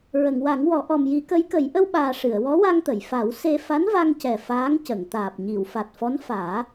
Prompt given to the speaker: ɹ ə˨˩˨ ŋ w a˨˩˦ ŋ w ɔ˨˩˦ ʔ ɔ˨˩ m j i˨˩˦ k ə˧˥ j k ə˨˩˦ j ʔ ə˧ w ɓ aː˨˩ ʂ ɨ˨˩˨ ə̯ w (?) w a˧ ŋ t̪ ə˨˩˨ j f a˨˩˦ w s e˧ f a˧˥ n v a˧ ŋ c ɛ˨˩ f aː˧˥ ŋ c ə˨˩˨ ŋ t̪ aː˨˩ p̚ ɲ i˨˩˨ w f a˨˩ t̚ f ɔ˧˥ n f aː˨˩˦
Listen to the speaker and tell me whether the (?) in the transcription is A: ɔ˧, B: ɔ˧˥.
B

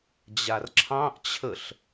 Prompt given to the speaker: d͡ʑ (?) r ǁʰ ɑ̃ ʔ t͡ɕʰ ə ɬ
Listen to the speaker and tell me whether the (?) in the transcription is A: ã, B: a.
B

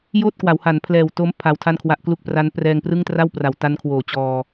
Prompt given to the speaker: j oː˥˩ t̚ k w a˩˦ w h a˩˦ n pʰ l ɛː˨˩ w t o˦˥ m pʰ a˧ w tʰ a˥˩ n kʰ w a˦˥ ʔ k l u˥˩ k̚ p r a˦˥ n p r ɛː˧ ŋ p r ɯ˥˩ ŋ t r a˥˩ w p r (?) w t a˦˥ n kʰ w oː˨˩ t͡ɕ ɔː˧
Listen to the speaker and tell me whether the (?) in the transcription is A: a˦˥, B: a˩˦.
B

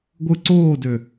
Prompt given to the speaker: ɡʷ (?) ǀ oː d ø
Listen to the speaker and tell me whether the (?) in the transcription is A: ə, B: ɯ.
B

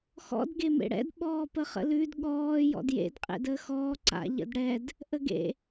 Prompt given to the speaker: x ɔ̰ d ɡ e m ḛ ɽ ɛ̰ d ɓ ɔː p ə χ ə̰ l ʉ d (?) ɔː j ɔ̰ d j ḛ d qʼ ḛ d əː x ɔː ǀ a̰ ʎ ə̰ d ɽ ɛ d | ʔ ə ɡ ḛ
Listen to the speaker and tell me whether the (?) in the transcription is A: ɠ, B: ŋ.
A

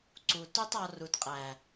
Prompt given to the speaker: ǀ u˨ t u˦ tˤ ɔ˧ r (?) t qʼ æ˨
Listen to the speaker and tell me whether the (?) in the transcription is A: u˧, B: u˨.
B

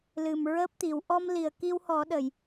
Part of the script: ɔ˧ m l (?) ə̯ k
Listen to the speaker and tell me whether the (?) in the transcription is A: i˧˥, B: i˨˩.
B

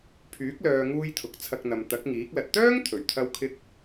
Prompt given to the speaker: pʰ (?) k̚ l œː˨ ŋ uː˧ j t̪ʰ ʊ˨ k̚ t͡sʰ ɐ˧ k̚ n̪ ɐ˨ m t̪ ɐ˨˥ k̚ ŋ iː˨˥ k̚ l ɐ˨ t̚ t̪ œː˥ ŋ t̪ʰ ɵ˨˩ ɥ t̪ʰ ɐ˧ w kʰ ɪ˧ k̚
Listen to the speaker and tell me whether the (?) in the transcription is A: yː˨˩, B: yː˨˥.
B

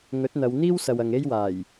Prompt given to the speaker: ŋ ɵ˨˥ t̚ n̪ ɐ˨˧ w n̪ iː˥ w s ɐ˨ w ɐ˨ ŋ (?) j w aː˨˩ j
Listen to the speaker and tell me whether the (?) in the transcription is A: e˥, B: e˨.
A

